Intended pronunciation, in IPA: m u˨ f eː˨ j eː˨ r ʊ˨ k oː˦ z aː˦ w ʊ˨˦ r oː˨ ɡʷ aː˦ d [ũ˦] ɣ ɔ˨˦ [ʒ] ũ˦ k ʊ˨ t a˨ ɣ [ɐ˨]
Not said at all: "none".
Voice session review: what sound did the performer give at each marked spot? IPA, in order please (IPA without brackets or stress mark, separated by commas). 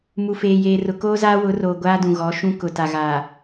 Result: ũ˨, ʃ, a˨